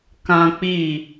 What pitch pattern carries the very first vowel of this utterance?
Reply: high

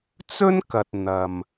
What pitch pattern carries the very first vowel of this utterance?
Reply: high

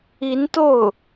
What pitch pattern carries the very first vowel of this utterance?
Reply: rising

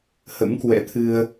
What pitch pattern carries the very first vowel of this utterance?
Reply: rising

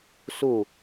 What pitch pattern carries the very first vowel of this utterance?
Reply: falling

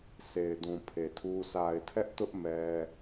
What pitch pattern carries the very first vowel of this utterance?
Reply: low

